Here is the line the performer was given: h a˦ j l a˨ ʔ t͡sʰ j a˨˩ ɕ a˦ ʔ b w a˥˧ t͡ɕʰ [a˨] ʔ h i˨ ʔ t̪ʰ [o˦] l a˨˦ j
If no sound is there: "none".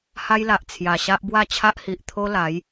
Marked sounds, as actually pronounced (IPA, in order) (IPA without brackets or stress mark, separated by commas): a˦, o˦